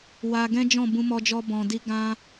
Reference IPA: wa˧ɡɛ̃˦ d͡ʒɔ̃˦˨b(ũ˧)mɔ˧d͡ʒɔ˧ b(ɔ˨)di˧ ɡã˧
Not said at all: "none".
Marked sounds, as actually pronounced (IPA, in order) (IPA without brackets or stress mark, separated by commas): ũ˧, ɔ̃˨